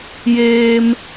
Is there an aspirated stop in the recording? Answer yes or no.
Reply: no